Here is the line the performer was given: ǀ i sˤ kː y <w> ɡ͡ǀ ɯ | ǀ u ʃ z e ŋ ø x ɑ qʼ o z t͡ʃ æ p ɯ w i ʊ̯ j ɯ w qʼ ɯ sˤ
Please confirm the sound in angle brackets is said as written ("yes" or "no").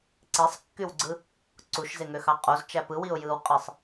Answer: yes